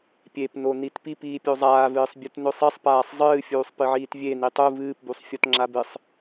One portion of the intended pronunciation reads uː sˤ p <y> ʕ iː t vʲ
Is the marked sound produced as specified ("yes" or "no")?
no